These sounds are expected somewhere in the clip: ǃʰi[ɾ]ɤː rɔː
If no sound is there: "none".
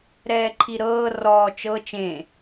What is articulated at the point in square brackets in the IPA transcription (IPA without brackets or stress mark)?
ɾ